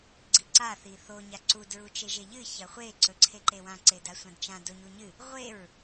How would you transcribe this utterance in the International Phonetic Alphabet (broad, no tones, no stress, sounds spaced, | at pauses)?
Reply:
ɡ͡ǀ i ǀ a θ i θ o ɲ a ǀ u d ɹ u t͡ʃ e ʒ e ʎ ɨ ç ɐ χʷ e ǀ ɵ ǀʰ e ǃ e w ã ǀ e d a sʷ ã d t͡ʃ ã d o ɲ u ɲ ɨ | ʁʷ e ɹ